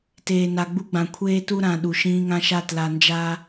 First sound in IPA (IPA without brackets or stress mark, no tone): t